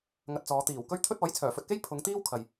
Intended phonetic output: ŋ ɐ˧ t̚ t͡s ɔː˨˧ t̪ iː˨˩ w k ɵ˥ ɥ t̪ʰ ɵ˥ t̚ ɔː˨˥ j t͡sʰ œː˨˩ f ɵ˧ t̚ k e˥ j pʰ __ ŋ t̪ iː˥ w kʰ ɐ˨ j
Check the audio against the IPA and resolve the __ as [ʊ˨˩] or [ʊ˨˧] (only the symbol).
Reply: ʊ˨˧